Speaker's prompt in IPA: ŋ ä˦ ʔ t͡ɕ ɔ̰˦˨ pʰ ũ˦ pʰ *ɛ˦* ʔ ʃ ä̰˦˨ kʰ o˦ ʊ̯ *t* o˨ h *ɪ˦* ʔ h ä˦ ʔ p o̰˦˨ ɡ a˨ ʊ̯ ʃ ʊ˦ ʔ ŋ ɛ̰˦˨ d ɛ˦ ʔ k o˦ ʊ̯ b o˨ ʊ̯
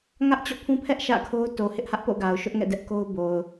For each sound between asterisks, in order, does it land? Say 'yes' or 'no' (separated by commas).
yes, yes, yes